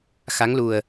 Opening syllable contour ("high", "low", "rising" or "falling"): rising